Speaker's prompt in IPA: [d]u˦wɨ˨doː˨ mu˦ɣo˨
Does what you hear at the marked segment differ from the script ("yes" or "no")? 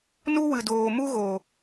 yes